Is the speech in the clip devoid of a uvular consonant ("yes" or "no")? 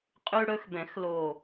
no